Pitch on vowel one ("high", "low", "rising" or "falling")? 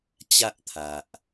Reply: high